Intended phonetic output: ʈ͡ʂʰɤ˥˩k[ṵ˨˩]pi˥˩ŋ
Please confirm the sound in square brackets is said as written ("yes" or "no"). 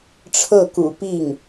yes